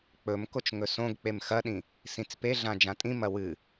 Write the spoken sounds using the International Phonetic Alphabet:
k͡p ɵ m k o t͡ʃ ŋ ɵ s õ ɡ k͡p e m x ɐ ɗ ĩ | s ĩ t͡s p e ɮ ã d͡ʒ ã tʼ ĩ m ɐ w ɨ

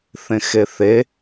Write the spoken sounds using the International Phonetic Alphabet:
θ ẽ x e θ e

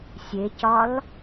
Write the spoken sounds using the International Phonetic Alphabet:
sʲ e c ɒ l

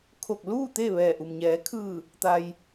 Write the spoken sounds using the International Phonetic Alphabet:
kʰ o˧˩ k̚ l uː˥˨ t̪ e˥˨ ʋ ɛː˧˩ ʔ u˩ m ɲ ɛː˩˧ kʰ ɯː˧˩ | t̪ a˩ j

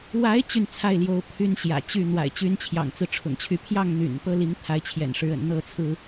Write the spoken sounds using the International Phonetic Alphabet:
w a˨˦ ɪ̯ t͡ɕ y˥˨ n t͡sʰ a˥˨ ɪ̯ l j o˨˦ ʊ̯ pʰ y˦ n ɕ j ä̰˨˩ t͡ɕ y˥˨ n̪ w a̰˨˩ ɪ̯ t͡ɕ y˨˦ n t͡ɕʰ j ɑ̰˨˩ ŋ t͡s ɹ̩˦ ʈ͡ʂʰ ʊ̰˨˩ ŋ t͡ɕʰ y˨˦ pʰ j ɑ˥˨ ŋ n̪ y̰˨˩ n p ɤ˦ l i˨˦ ŋ t̪ʰ a˨˦ ɪ̯ t͡ɕʰ j ɛ̰˨˩ n ʂ ɻ̩˨˦ ə̰˨˩ n n̪ ɤ˥˨ t͡sʰ ɹ̩˦

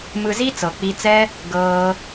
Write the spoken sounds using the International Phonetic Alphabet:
m ɯ˧ z i˦ t͡s ɤ˨ k͡p i˧ t͡s ɛ˦ | ɡ ɤː˦

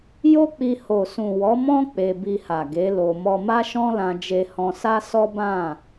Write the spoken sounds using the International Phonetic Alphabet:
j o˦ k͡p i˧ h o˨ s ũ˨ w ɔ˨˦ m ɔ̃˦ k͡p e˧ b i˧ h a˨ ɡ e˨˦ l o˧ m ɔ˧ m a˦ ʃ ɔ̃˦ l ã˧ d͡ʒ e˧ h ɔ̃˧ s a˦ s ɔ˦ b ã˦˨

